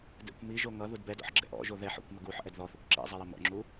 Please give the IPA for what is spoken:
dɛ̰kʷ miʒo ŋʌ ðudbɛdɔ̰ħ ɡ͡ǁɛ̰ʔɔ̰ʒo ðɛħ ɔ̰kʷmʌ ɡuħ ʔɛdðɔθɛkʷ ǁɛ̰zˤɛ jəmɔ̰ŋ͡ǁu

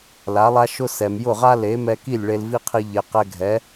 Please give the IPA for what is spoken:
la˩˥lˠa˥ʃʊ˥ sɛ˩mjʊ˥˩ʁa˥ le˩˥mɛ˧ki˥˩lʲ ɭe˧lvi˥qʰi˧ ʎe˩ qɛ˧ɡʱɛ˩˥

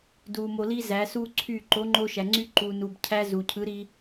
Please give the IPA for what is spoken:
du˨ mo˨li˧ zæ˨˦su˦ǀʰy˦˨ ǃo˨˦ŋ͡ǃo˧ʃæ˨ŋ͡ǀy˧ ǃu˨nu˨b cʰæ˧zu˨cʰɯ˨˦ ɾi˧

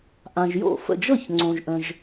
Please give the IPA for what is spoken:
ʔã˨ʒ jo̰˥˩fə̰˥˩ d͡ʒɤ˥˩çŋ͡ǀõ˨ʒʔə̃˨ʒ

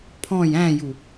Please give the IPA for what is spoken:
pʰɔ̃j æ̃ju

